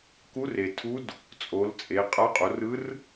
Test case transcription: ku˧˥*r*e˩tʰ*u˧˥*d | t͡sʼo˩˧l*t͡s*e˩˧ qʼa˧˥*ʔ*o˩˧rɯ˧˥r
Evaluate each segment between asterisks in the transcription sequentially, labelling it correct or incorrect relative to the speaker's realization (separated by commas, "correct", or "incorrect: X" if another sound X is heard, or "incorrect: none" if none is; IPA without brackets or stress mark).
correct, correct, incorrect: t͡sʼ, incorrect: qʼ